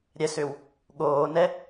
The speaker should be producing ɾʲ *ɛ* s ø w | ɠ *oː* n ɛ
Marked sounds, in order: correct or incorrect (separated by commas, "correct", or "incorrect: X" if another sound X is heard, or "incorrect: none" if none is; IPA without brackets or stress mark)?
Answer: correct, correct